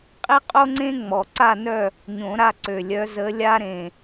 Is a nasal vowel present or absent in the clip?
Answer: present